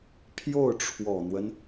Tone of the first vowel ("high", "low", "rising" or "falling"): falling